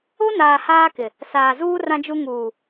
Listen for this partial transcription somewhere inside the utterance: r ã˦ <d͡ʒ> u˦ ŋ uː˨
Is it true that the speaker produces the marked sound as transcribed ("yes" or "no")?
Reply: yes